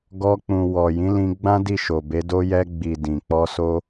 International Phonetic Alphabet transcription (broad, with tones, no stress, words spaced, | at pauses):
ɡɔ˧k͡pũ˨ wɔ˨jĩ˨˦lĩ˧ɡ͡bã˦ di˦˨ʃo˨be˨˦do˦ jɛ˧ɡ͡bi˨ dĩ˨ k͡pɔ˧so˦